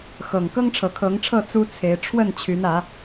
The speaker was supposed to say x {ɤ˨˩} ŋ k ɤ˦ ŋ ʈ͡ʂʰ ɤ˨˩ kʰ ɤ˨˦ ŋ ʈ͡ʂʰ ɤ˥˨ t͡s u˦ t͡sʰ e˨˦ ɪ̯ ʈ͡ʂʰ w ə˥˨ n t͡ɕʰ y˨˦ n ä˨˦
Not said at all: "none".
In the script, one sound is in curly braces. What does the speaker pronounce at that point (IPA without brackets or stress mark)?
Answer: ɤ˨˩